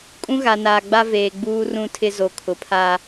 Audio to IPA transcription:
kʼ ũ˦ ɣ a˨ n aː˨ ɡ͡b a˦ v eː˨ ɡ͡b uː˦ r ũ˦ tʰ ɪ˦ z o˨ kʰ ʊ˨ pʰ a˨

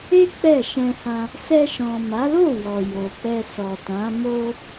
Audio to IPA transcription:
e˦ k͡p ɛ˦˨ ʃ ɛ̃˧ h ã˧ | s ɛ˧ ʃ ɔ̃˨ m a˨˦ l o˦˨ w ɔ˨ j o˨ k͡p ɛ˧ s ɔ˨ t ã˨˦ m o˧

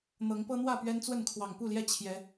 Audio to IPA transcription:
n̪ ɤ˨˦ ŋ p ɤ˦ n̪ w ä˥˨ p ɥ ɛ˦ n t͡s w ə˥˨ n kʰ w ɑ˨˩ ŋ p u˥˨ l j ɛ˥˨ t͡ɕʰ j ɛ˨˦

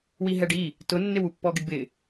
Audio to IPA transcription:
w i ɦ ɛ ɖ i | t ʊ nː ɪ w u pː ɔ ɡ ɪ ɖ b ɪ

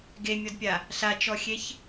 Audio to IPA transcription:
ɡ e mʲ ɔ d pʲ a | ɬ a t͡ʃ ɔ xʲ e ç

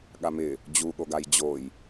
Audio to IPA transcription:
ɠ a m ɪ | d͡ʑ u ɠ o ɡ a j d͡ʑ o j

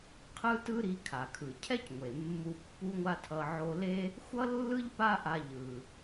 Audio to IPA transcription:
qʰ ɯ˥ t ɯ˥ ɾ i˧ kʰ a˩ kʰ ɯ˩ cʰ ɛ˥ c ŋʷ e˩ mː u˧ pː u˥ ŋʷ a˥ tʰ ʌ˧ ʕ o˧ l e˥ | xʷ ʌ˥ lː ɯ˥ ʎ p a˥ ʔ a˧ ʎ ɯ˩

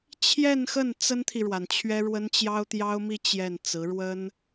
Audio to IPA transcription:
t͡ɕʰ j ɛ˥˧ n x ə˥˩ n t͡s ə˥ n t̪ʰ i˨ ɻ w a˩ n t͡ɕʰ ɥ ɛ˥ ɻ w ə˥ n t͡ɕ j ɑ˥ ʊ̯ t̪ j ɑ˥ ʊ̯ m i˥ t͡ɕ j ɛ˥˩ n t͡s ɹ̩˧˥ ɻ w ə˥ n

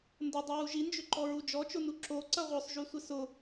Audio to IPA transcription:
n d ʊ dˤ u w u ʒ i n d͡ʒ ʏ ǃ ɔ ɹ u d͡ʒ ɔ t͡ʃ o n u ǁ o ǀ ɐ ʁʷ œ sˤ ʒ y sʷ ɪ s ʊ

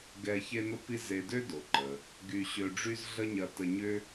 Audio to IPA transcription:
ɡ ɛ˧ ç e˥ n ʊ˥ p i˥ z e˧ d ø˥ d o˩ ǃ ə˩ | ɡ y˧ ɕ ø˧ ɖ͡ʐ y˥ z ɮ ə˥ ɲ ɐ˧ t ə˧ ɲ ʏ˥

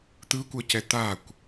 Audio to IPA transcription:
t̪ ɯ kʷ ʌ c ɛ t̪ a kʷ

